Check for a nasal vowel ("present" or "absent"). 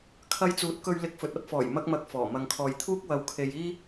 absent